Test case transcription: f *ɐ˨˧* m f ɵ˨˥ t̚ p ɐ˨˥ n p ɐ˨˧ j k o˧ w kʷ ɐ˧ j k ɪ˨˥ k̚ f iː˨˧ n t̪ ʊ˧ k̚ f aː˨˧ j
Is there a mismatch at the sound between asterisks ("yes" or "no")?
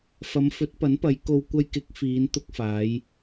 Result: no